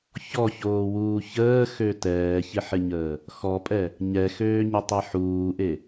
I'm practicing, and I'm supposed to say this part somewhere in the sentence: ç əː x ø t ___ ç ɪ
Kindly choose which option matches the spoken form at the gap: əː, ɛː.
ɛː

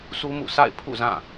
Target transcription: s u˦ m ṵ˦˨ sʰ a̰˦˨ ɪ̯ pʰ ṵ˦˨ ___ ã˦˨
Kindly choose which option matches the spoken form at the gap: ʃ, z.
z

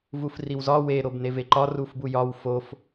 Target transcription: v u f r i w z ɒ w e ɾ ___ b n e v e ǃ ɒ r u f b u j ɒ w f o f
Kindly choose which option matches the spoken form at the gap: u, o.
o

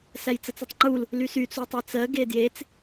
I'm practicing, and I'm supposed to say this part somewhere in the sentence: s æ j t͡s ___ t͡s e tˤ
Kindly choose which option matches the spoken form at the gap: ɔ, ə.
ə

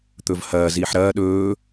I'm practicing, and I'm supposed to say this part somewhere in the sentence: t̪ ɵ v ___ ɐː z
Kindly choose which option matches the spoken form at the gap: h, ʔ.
h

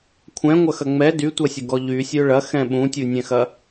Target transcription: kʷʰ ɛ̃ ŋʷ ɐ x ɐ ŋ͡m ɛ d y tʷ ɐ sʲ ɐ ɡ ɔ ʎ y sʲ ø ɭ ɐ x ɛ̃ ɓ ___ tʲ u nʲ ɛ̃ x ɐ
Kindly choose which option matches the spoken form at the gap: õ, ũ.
ũ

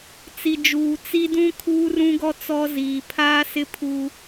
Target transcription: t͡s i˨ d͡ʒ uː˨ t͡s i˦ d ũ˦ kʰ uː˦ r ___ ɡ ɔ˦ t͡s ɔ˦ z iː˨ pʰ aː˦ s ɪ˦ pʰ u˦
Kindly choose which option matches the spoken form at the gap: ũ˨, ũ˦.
ũ˦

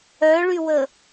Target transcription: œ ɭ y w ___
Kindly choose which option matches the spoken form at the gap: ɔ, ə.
ə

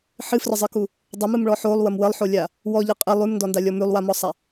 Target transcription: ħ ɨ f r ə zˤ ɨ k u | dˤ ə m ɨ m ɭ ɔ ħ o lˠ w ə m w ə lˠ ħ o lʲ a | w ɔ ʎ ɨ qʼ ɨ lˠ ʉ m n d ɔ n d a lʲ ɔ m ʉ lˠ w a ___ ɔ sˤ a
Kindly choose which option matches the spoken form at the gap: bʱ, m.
m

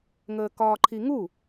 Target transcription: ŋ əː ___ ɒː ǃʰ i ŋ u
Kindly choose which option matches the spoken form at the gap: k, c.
k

